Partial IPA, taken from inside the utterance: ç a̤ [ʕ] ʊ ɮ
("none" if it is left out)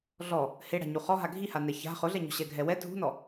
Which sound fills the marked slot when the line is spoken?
χ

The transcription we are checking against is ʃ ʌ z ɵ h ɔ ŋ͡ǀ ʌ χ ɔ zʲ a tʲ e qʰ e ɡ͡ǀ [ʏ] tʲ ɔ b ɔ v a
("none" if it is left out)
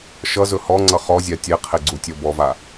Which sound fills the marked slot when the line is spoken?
u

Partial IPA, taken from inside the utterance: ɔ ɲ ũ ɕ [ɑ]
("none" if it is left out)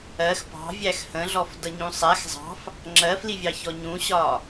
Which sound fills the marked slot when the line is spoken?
ɒ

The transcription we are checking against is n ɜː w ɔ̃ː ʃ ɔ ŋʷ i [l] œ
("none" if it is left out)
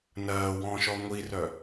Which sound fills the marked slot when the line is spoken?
r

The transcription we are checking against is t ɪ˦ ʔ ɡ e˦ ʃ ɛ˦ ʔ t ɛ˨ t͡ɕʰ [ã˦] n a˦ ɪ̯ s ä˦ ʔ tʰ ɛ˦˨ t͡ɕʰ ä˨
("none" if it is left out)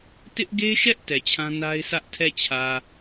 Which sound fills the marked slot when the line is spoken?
ã˦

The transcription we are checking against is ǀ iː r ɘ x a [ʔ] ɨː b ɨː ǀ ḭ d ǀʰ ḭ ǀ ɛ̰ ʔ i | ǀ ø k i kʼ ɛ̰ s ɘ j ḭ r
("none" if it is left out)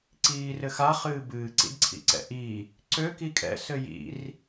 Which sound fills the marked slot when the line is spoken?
χ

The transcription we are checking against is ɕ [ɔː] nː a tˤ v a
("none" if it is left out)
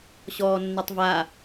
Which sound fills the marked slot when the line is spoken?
ɔː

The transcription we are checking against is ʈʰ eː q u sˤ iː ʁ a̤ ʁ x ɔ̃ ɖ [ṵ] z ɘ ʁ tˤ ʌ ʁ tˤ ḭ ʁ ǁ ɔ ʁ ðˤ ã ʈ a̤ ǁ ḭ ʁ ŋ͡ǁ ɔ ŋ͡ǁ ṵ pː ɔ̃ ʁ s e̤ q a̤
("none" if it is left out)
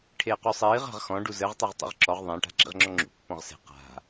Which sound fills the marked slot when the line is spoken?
u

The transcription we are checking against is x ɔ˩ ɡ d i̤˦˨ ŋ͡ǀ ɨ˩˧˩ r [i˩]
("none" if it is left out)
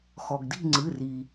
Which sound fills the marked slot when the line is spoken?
i˩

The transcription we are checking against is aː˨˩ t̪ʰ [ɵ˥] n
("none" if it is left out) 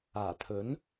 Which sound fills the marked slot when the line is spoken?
ɵ˨˥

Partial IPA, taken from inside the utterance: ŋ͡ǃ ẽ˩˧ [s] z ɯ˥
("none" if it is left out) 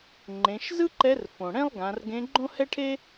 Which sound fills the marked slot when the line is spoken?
ʃ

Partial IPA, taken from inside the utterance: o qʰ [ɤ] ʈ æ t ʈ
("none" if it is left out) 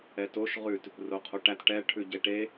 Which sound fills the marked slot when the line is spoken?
o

